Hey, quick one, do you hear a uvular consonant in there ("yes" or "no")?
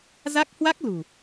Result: no